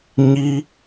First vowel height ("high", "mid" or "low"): high